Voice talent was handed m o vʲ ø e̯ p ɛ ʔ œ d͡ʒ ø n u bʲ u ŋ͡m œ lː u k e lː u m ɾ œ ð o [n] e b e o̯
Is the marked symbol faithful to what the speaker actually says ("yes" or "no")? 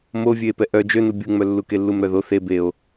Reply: no